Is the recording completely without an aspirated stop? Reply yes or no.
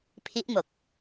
no